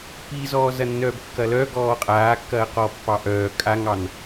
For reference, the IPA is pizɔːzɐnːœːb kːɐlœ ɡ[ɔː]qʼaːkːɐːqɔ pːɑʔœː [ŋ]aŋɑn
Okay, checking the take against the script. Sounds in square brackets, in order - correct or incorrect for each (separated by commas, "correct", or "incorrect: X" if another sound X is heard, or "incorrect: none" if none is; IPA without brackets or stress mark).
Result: correct, incorrect: kʼ